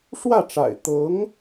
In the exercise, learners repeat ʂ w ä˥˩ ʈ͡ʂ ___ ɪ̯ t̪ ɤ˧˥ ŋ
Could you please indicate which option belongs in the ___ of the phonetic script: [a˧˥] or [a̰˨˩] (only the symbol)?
a̰˨˩